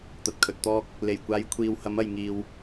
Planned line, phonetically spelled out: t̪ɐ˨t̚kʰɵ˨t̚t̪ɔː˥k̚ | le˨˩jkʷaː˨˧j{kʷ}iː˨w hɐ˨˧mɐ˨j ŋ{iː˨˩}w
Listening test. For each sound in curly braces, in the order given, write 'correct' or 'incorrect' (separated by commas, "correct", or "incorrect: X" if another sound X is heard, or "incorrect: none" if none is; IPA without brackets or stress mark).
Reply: incorrect: kʷʰ, incorrect: iː˨